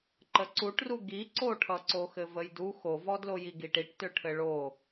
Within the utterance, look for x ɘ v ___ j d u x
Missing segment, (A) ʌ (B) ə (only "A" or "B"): B